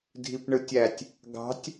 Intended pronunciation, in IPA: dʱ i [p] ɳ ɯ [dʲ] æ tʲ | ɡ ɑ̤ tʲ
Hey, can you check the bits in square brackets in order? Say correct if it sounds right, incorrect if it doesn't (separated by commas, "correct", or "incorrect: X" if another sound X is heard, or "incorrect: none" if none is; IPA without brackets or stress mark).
correct, incorrect: tʲ